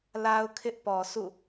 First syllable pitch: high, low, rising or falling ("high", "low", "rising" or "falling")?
high